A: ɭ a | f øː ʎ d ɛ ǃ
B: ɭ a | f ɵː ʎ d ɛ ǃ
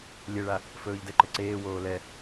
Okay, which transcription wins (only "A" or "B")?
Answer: B